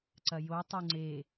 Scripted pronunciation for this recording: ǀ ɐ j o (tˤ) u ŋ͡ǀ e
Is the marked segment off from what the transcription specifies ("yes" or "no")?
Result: no